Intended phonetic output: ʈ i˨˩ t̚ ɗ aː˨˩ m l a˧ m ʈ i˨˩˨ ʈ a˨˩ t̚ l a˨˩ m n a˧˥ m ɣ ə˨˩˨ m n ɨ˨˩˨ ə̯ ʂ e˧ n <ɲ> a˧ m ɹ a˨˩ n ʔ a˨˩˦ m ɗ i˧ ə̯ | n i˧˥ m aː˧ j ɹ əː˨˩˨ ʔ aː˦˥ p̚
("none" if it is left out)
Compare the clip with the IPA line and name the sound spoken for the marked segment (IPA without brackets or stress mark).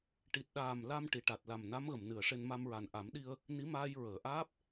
m